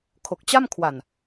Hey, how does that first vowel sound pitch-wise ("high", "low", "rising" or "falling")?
low